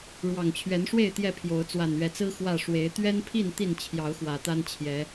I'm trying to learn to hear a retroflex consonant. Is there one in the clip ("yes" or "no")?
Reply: yes